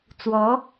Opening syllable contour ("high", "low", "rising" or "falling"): rising